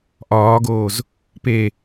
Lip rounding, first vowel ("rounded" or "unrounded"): rounded